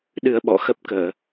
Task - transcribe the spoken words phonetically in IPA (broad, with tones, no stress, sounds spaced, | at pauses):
ɗ ɨ˧ ə̯ ɓ ɔ̰˧˨ x ə˦˥ p̚ k əː˧˩˨